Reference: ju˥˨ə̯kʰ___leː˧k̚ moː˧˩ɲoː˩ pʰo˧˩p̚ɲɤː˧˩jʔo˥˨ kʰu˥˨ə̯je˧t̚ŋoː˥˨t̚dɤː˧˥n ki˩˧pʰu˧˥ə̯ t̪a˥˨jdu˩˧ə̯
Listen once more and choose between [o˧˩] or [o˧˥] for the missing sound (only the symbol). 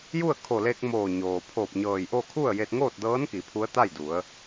o˧˩